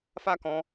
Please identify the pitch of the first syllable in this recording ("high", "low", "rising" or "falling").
high